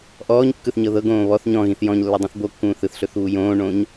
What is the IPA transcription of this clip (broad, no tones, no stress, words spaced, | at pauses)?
ʔɔːɲkːɯθɲɤ ðɤɡõː βɔθ ɲɔ̃ɣĩθ jɔ̃ɲlːɵdˤĩθ bokːũː θɯθɬɵθβu jõːɳõːɲ